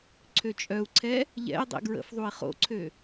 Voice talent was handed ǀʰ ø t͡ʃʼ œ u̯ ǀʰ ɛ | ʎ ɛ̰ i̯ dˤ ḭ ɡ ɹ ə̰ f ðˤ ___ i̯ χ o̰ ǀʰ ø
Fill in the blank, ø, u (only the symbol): u